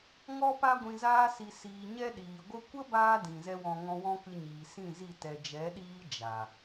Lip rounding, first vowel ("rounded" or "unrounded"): rounded